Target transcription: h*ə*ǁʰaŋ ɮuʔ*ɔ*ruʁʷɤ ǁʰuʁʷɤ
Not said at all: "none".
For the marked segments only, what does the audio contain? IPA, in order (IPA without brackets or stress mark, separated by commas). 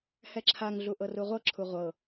ɛ, ɤ